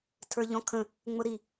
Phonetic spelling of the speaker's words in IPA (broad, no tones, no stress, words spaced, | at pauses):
tʰə˞ʎɔ̃kʰə̃ | ŋ͡mʊɾi